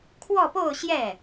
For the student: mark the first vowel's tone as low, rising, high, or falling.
falling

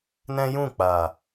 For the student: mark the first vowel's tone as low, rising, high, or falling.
high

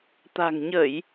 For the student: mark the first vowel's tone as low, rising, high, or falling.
low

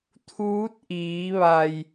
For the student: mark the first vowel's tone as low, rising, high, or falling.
rising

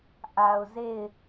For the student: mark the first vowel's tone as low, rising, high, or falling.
low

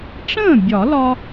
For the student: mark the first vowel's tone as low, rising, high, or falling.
falling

